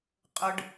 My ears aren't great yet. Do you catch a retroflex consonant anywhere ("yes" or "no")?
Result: yes